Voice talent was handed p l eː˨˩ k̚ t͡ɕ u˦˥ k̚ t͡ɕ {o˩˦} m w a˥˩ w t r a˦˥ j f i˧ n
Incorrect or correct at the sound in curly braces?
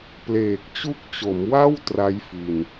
correct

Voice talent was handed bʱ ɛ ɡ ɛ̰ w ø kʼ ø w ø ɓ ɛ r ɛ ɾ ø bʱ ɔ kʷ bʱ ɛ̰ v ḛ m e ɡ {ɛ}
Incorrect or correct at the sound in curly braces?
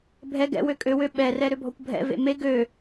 incorrect: ø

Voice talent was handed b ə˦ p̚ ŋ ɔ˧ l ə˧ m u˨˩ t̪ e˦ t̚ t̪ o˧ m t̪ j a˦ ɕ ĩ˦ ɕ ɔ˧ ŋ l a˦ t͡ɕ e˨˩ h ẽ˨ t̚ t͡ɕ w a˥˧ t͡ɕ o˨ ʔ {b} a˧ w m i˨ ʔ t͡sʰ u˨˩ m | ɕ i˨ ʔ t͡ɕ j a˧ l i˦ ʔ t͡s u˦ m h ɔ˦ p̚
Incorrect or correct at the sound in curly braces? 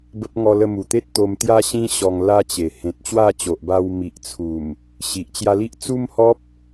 correct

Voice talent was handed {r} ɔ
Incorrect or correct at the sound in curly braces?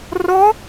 correct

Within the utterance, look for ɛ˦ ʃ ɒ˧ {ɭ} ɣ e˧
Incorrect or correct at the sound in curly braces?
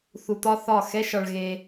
correct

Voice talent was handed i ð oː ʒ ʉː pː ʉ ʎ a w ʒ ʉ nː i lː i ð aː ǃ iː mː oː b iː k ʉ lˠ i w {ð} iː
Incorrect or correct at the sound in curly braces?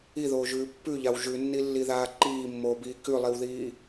correct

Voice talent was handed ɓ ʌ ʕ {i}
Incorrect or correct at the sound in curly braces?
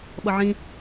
incorrect: ĩ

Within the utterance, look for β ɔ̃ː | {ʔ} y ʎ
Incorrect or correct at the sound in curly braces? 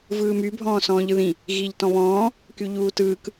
incorrect: k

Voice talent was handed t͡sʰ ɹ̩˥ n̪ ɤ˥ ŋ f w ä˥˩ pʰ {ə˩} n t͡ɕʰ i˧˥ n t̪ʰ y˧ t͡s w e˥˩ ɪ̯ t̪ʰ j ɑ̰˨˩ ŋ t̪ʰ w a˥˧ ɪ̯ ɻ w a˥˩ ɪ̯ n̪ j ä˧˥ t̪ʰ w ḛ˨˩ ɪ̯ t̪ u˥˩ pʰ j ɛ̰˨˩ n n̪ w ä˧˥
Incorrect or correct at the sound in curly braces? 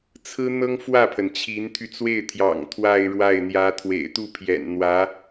correct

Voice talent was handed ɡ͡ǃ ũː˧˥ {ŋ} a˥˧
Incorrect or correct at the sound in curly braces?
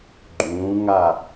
correct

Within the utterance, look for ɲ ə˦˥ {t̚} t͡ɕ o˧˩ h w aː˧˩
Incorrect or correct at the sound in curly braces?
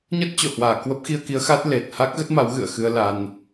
correct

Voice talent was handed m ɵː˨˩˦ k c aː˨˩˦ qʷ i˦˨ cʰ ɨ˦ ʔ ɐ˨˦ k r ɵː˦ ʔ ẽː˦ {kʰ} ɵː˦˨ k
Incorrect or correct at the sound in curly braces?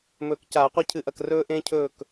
incorrect: cʰ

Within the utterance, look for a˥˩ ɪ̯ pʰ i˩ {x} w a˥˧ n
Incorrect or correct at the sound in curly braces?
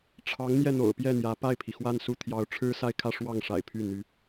correct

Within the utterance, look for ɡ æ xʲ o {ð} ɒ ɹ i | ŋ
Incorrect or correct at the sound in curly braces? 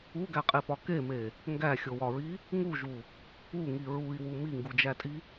incorrect: w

